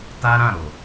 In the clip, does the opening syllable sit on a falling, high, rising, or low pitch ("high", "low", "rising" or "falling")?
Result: high